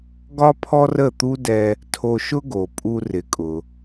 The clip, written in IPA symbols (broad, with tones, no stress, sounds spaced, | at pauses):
ɡ ɒ˥ pʰ ɔ˥ r ə˥˩ t̪ u˥ d ɛ˧ | tʰ o˧ ʃ ʊ˥ ɡ o˩ pʼ u˧ r ɪ˩˥ kʼ ʊ˩